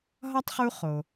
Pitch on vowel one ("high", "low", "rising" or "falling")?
high